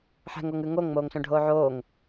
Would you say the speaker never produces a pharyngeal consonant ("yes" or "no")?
no